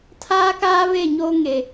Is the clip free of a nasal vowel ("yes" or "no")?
yes